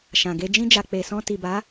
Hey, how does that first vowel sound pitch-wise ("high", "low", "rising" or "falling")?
low